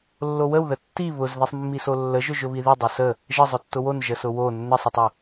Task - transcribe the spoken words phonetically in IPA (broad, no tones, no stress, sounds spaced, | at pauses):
lː o w ə w ð ə tː i β ʊ z ð i sˤ mː i s o lː ə ʒ ʊ ʒ ʊ β i ð i dˤ ʊ s ə | ʒ ə zˤ ʊ tː ʊ w o n ʒ ə s ʊ w o nː ə sˤ ə tˤ ʊ